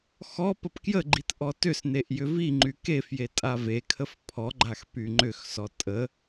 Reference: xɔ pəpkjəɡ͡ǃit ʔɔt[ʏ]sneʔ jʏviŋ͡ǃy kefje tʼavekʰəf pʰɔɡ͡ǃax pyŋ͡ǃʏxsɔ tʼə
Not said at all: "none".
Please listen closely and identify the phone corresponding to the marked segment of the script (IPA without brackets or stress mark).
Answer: ʏ